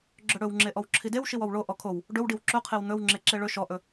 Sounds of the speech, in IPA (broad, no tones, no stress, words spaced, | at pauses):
ɡ͡ǁɵɽɵwŋ͡ǁe ʔɔwǁʰidewʃiw ɔwɭo ʔɔkʰow | ɖɵwɖiw ǁɵqʰew n̪ɵwŋ͡ǁe ǁeɭɵ ʃɔʔɵ